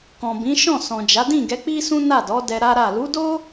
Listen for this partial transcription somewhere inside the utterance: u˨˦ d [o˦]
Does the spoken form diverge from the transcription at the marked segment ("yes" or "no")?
no